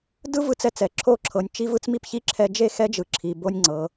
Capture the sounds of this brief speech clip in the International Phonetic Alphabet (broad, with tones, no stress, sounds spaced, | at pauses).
d ɯ˦ v ɯ˦ t͡s ɛ˦˨ t͡s ɛ˨˦ ǁʰ o˦˨ ǁʰ ɤ˨ nʲ t͡ʃ i˦ v ɯ˦ t͡s m i˦ p ç i˦ ǁʰ ɛ˦ d͡ʒ e˦˨ x ɛ˦ d͡ʒ ɯ˨ ǁʰ i˨ b o˦ nʲ ŋ͡ǀ ɤ˨˦